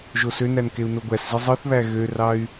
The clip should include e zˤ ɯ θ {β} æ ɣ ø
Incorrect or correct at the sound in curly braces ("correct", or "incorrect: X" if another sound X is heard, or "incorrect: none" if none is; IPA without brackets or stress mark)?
correct